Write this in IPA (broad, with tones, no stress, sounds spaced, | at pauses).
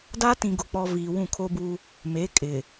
d a˦ t ĩ˨ ɡ ʊ˨ k͡p ɔ˨ v iː˨ w ũ˦˨ kʰ o˦ b u˦ | m e˨˦ kʼ ɪ˨